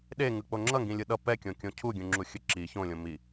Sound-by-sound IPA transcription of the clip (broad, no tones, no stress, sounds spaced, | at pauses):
ɗ e ŋ ɯ k͡p o ŋ͡ǁ ʌ ŋ ɡ ĩ lʲ ɯ ɗ ʌ p ɛ kʲ õ kʲ õ cʰ u ɡʲ ũ ŋ͡ǁ u xʲ ɯ ǁ i ç õ lʲ õ m i